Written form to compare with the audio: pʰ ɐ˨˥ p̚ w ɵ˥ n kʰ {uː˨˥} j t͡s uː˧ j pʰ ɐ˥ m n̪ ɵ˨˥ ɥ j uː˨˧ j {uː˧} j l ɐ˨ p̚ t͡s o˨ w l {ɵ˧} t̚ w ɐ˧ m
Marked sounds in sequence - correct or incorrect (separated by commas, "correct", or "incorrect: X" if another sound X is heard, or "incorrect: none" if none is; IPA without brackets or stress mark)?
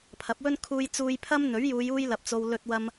incorrect: uː˧, correct, correct